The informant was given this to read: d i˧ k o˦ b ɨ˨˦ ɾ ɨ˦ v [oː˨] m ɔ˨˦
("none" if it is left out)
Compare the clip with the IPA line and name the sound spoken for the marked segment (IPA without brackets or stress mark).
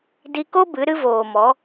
oː˨